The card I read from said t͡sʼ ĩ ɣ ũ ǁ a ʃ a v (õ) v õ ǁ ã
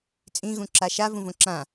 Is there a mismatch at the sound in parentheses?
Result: yes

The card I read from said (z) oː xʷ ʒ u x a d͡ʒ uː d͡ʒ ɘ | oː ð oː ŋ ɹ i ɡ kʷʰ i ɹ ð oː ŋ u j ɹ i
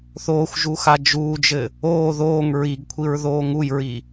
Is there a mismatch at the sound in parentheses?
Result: yes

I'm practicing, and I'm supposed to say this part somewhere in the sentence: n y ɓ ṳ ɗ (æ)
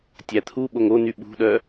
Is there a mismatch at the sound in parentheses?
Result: yes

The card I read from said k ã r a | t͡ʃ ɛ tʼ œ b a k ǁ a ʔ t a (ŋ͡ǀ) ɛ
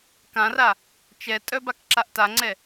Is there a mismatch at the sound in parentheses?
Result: no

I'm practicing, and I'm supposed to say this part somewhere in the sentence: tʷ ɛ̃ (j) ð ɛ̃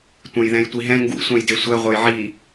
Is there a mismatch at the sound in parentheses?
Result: no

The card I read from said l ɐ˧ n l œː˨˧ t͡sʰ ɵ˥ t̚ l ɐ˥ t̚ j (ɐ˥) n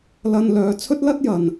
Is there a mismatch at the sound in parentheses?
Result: yes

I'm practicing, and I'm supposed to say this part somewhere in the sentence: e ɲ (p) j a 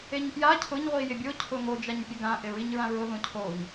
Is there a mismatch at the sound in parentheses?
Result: no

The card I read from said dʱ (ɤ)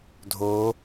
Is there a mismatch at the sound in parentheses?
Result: yes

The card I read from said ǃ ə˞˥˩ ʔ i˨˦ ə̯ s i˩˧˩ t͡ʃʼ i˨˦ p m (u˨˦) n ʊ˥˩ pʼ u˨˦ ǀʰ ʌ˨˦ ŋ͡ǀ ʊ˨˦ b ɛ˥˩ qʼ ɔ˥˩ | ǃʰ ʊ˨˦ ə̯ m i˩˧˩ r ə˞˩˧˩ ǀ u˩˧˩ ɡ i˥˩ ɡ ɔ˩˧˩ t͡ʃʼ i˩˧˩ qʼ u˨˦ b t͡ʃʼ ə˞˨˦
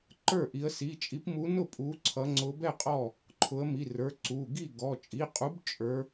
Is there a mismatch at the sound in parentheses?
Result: no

